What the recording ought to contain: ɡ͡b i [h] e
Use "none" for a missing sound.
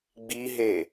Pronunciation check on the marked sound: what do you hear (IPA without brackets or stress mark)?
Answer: ɦ